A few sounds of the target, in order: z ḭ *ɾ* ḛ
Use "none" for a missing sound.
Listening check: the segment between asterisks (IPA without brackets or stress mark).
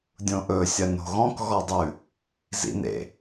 n